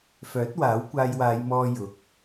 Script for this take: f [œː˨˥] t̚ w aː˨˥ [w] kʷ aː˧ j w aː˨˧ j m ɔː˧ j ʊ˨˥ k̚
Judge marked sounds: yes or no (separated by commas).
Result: yes, yes